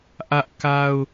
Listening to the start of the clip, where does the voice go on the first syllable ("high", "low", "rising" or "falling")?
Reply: high